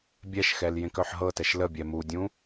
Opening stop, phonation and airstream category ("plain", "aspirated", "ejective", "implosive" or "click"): plain